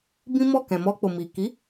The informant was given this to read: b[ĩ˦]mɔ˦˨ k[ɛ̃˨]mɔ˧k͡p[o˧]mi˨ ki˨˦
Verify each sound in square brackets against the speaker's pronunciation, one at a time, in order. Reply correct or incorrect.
correct, correct, incorrect: o˨

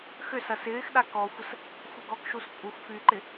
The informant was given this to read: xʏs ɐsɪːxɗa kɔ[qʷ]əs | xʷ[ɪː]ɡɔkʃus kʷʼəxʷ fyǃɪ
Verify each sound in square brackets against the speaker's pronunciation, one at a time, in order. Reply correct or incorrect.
incorrect: xʷ, incorrect: ɪ

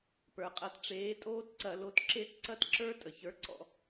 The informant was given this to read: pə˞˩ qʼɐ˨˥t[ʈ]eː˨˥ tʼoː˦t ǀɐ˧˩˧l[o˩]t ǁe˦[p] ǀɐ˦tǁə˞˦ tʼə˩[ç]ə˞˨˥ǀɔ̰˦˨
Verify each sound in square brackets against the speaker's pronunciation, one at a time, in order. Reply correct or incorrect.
incorrect: ʈ͡ʂ, incorrect: o˨˥, incorrect: t, correct

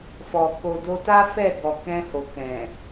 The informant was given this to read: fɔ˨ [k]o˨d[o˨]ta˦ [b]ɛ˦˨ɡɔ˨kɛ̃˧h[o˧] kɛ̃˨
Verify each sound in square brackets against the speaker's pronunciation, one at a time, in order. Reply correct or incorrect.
correct, incorrect: o˧, incorrect: f, incorrect: o˨

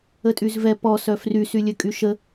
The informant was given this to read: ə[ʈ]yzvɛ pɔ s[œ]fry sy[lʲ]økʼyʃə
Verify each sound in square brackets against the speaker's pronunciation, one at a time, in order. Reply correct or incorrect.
incorrect: tʼ, correct, correct

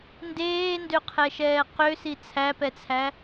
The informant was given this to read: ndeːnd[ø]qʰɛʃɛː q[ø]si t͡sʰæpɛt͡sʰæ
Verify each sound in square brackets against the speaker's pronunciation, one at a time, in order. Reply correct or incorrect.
correct, correct

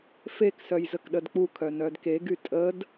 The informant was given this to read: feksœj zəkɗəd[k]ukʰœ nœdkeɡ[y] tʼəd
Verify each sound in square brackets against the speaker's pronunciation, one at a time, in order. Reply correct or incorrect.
incorrect: k͡p, correct

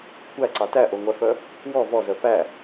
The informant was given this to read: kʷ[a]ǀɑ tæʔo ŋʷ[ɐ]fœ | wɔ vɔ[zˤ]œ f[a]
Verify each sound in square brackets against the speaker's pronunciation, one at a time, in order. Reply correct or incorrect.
incorrect: æ, incorrect: æ, incorrect: z, incorrect: æ

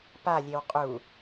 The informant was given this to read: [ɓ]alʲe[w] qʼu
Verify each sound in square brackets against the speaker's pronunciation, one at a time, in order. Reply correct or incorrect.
incorrect: p, correct

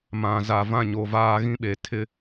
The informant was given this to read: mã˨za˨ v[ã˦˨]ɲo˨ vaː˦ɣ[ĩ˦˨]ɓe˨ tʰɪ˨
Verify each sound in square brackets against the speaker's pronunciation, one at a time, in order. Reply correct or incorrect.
correct, incorrect: ĩ˦

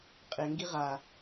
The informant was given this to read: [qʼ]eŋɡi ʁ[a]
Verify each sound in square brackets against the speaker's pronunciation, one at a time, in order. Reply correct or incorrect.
correct, correct

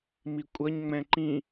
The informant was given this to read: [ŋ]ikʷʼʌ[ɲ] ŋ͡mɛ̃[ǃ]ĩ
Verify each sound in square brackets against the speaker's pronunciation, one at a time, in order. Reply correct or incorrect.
incorrect: m, correct, correct

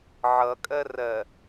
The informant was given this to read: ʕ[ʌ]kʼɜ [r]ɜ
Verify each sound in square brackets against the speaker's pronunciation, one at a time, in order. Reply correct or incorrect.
correct, correct

